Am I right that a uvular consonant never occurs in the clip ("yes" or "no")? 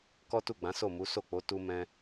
yes